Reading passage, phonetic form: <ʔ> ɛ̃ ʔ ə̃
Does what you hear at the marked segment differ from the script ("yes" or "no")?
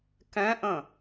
yes